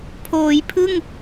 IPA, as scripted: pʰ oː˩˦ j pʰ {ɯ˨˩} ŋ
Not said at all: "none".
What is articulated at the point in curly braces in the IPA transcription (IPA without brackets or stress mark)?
ɯ˥˩